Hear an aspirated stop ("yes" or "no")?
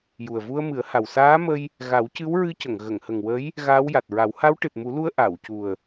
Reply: no